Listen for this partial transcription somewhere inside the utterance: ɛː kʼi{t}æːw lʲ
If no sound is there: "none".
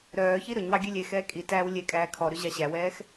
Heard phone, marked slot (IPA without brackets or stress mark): t